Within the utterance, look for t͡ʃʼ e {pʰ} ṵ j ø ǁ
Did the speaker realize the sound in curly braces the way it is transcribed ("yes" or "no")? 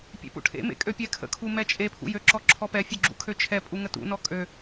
yes